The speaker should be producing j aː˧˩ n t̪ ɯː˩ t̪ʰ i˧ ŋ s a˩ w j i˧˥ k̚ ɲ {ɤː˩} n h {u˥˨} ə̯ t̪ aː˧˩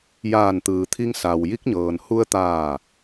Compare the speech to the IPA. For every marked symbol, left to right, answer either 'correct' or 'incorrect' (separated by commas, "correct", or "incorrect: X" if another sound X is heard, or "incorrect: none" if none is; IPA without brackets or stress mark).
correct, incorrect: u˧